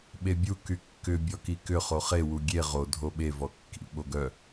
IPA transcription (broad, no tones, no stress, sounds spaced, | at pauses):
ɓ e bʲ u k y kː ʏ bʲ ɔ k i k ʏ χ o χ e w u ɡʲ e ʁ o dʱ o ɓ e v ɔ kː ḭ ɓ o ɡ œ